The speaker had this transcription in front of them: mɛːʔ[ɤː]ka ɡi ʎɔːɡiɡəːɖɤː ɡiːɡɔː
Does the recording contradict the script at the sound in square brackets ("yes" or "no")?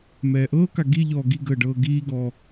no